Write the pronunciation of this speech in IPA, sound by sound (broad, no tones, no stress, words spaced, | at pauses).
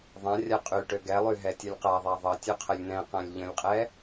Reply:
ðˤã rʲaqʼyʈø ɡɛlˠy ɦɛtʲʌlʲqaðˤa ðˤʌtʲø qʰəlʲn̪ɛ̃qãlʲ ʎə̃lʲqʼɛ